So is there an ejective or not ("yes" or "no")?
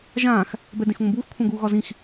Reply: no